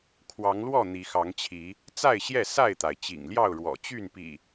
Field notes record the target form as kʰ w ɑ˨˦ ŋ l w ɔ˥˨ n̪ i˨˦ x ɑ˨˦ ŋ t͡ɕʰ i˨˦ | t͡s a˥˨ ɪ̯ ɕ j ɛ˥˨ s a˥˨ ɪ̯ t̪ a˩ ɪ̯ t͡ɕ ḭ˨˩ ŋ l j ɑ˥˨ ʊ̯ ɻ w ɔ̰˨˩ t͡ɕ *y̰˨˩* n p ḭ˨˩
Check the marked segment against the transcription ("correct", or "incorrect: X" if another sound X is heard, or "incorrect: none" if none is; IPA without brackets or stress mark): incorrect: y˥˨